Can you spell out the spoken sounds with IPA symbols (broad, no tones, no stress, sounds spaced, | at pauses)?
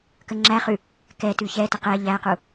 k ə ŋ͡ǁ æ χ ʉ | k ɛ t ʉ ç ɛ t ə q ɛ ʎ æ q u